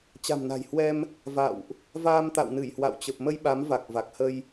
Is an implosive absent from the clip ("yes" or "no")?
no